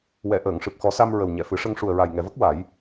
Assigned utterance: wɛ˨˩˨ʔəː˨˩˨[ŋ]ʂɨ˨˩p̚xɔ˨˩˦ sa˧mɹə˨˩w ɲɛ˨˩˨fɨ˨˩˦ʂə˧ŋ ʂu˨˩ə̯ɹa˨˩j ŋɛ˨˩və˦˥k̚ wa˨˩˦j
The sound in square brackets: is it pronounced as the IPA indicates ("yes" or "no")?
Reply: yes